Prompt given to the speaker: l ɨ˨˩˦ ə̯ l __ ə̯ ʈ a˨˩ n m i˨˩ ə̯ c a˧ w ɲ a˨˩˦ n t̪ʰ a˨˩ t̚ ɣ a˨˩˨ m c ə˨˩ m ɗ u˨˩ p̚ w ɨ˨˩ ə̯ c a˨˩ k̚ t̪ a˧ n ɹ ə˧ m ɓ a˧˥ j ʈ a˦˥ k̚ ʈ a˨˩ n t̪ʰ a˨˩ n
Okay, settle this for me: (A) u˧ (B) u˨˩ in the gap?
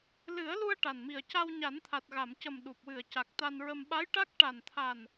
A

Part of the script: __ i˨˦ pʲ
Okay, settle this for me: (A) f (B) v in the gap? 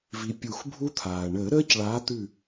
B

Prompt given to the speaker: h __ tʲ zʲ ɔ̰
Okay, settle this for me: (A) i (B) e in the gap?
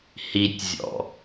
A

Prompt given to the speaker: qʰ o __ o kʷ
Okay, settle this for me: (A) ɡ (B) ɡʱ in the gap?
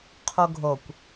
B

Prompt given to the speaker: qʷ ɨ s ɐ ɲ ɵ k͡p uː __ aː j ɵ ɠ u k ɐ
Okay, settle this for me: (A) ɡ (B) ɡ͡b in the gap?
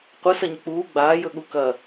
B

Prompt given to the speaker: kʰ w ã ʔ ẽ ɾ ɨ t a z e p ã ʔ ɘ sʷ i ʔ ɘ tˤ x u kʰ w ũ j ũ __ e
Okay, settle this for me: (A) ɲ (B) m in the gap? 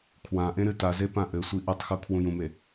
B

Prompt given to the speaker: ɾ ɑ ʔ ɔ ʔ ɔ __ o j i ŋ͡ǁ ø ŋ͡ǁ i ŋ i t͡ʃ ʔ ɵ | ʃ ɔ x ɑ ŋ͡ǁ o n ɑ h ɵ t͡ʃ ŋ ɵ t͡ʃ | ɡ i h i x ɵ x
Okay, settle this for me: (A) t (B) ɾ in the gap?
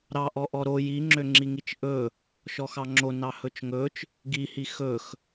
B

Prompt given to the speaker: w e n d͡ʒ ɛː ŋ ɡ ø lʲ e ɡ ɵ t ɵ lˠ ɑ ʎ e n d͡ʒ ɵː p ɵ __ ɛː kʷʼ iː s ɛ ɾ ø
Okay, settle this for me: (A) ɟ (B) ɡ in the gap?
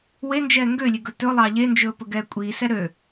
B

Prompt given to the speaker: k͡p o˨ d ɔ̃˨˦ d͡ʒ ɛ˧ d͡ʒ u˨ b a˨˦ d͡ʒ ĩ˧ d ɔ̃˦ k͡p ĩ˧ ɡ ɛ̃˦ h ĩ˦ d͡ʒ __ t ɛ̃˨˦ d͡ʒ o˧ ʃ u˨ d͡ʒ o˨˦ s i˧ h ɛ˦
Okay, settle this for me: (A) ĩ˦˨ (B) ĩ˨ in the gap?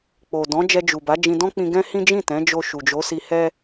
A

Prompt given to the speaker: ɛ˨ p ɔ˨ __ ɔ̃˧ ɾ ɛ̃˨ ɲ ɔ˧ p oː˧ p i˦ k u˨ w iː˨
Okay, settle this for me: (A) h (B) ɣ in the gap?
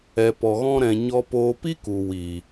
B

